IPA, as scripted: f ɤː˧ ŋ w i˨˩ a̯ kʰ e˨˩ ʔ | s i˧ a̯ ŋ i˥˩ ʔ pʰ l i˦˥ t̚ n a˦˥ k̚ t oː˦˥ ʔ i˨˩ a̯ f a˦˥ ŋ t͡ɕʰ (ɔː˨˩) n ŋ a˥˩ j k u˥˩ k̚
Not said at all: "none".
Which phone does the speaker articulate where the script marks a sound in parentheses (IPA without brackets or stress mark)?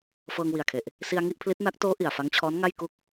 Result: ɔː˦˥